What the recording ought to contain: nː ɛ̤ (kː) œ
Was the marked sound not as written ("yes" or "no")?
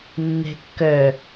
no